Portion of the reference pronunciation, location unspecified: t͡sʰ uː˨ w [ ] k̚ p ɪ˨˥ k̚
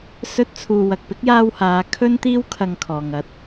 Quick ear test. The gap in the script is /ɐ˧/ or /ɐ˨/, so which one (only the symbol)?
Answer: ɐ˨